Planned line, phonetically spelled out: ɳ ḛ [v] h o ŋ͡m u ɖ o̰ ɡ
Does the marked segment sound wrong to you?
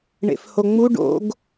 yes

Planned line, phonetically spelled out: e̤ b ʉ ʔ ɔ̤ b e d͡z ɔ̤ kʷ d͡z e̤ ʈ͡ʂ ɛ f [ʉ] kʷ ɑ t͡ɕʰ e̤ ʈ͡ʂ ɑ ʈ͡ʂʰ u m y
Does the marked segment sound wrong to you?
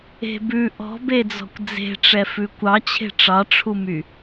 no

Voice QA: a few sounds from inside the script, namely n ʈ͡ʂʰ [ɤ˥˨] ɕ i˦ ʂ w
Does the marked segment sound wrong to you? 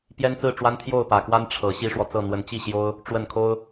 yes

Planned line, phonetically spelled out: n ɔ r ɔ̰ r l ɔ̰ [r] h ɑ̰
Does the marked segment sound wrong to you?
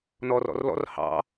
no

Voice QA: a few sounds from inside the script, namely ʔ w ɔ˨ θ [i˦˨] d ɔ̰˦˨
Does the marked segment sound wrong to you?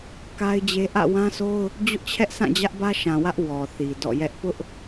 yes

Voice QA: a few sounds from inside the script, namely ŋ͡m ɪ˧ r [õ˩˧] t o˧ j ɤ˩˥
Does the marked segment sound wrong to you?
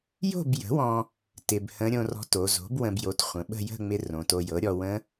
no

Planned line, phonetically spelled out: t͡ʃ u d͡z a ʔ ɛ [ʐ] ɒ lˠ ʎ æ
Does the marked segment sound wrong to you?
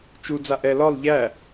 yes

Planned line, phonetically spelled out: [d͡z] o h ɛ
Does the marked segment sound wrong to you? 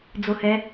no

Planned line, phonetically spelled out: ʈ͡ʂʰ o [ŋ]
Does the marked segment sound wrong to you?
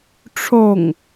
no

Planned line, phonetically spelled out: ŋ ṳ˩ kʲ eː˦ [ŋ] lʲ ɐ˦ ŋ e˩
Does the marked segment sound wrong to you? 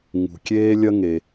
yes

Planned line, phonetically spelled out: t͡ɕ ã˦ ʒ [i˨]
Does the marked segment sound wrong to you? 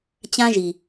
no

